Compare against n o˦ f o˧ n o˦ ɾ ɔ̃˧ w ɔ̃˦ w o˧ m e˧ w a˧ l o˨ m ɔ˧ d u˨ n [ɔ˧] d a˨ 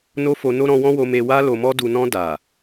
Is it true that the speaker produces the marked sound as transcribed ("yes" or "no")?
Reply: no